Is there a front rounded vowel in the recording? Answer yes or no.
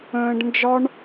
no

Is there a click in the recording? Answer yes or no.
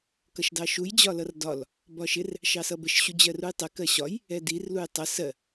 no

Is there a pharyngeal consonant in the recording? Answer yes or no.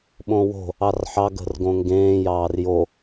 yes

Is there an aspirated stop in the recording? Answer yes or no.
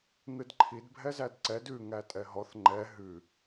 yes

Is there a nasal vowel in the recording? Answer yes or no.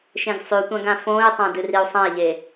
yes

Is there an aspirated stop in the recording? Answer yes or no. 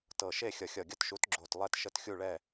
no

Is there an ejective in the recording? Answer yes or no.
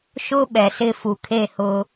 no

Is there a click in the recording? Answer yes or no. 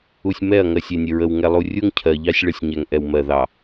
no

